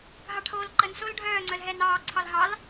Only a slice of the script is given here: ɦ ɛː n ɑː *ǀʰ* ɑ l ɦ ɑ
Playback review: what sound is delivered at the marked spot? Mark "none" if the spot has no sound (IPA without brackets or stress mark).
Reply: ǀʰ